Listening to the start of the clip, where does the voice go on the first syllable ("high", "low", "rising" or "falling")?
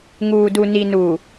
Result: low